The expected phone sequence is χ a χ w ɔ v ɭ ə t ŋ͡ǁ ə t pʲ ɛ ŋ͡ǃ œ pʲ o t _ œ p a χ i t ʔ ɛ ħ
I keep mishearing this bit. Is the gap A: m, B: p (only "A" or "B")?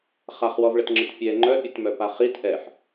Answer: A